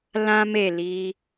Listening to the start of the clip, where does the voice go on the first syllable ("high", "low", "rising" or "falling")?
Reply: high